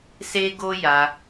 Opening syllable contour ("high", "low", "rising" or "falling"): high